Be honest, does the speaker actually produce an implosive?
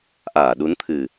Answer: yes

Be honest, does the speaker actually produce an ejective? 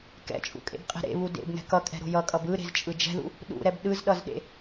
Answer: yes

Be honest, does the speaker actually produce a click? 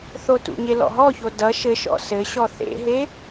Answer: no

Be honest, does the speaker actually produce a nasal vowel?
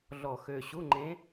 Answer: yes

